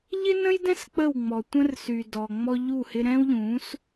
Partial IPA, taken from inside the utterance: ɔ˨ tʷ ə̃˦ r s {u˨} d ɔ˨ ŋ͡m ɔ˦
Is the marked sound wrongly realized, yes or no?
yes